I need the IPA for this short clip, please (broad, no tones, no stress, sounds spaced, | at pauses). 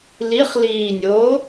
l i χ l iː nʲ oː